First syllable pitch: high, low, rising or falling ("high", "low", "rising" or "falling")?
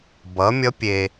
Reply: rising